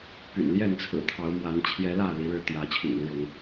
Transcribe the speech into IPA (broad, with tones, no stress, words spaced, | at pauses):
py̰˨˩n ljɛ˥˨nt͡sʰɹ̩˨˩ t̪ʰɑ˨˦ʊ̯mwa˨˦n t͡ɕʰjɛ˨˦lä˥˨ li˨˦ɻɻ̩˥˨ t̪jä˨˦ t͡ɕʰḭ˨˩ŋu˨˦ɻʊ˨˦ŋ